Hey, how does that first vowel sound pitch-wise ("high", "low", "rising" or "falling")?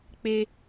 high